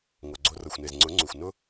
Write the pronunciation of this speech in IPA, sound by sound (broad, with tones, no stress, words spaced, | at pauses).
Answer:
ŋo˨ɡ͡ǀo˧ rɤ˨xʷne˨z ŋ͡ǀʊ˨˦ ŋ͡ǀu˨xʷnʊ˦